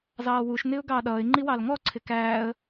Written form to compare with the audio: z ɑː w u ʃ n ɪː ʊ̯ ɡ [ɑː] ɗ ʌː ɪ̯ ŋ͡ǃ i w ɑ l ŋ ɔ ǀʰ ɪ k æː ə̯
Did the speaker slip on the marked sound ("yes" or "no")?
no